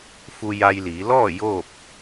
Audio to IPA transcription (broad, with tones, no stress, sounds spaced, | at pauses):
f u˧ j a˧ j l iː˩˧ l ɔː˥˨ j oː˥˨ p̚